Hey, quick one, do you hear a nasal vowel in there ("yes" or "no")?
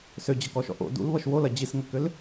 no